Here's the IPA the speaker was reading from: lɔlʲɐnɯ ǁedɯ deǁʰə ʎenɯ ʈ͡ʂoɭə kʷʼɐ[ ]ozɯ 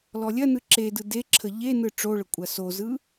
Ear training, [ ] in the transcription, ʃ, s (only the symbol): s